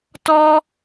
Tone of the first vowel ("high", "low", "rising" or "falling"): high